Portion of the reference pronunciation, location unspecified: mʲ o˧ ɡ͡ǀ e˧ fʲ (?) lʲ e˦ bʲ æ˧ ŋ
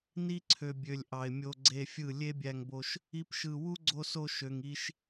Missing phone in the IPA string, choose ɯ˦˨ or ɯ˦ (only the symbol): ɯ˦˨